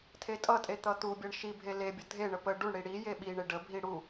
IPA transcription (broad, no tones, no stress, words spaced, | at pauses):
tʰetʼʌtʼe t̪ʌt̪ubʲʌɳ ʃibʱe lebʲʌ dʱeɳə pə ɖuɳɽi ɽi jeɓiɳe ɖəbʱi ɽu